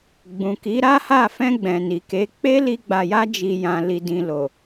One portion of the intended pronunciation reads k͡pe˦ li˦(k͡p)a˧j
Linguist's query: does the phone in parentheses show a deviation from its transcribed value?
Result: yes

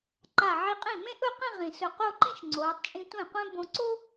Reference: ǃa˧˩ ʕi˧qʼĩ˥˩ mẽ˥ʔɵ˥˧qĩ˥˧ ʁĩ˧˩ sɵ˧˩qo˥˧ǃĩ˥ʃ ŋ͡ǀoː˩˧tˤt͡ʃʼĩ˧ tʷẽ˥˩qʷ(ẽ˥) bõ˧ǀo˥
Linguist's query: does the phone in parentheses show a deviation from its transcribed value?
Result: no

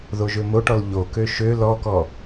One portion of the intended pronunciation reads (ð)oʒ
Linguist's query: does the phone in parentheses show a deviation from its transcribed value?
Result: no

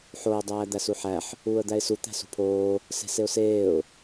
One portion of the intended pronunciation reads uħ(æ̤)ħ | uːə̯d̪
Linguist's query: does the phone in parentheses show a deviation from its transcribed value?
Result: yes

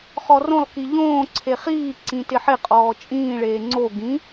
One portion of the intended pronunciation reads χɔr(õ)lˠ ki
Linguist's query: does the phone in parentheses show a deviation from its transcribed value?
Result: no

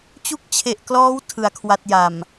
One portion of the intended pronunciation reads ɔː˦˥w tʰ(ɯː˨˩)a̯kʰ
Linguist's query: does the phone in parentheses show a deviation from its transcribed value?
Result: yes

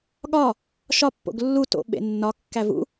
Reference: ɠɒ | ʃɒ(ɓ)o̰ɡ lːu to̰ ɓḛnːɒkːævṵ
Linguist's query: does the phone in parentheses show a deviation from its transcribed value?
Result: yes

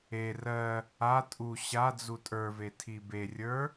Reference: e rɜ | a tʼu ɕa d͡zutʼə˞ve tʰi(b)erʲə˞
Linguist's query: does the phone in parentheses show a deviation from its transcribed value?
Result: no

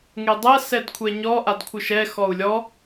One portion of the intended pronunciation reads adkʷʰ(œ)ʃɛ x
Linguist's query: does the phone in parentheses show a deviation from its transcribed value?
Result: no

